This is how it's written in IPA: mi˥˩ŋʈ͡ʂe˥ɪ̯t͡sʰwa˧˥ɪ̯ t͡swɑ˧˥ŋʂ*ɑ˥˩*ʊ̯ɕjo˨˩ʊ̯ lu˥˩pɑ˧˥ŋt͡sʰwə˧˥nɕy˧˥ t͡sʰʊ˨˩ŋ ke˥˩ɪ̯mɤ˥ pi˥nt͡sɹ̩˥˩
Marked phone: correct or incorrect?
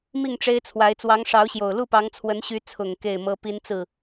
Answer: incorrect